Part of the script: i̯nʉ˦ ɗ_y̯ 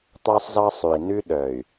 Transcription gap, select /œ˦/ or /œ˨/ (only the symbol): œ˨